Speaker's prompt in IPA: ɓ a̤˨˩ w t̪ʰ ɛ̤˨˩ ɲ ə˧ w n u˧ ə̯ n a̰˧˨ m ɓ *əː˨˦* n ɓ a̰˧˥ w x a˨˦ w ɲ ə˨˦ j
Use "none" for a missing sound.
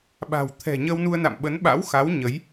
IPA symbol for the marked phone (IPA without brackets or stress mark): ə˨˦